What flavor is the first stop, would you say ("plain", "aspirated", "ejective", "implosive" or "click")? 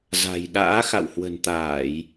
implosive